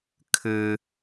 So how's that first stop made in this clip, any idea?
aspirated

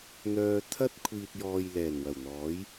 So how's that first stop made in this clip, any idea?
aspirated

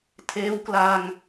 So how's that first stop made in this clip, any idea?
aspirated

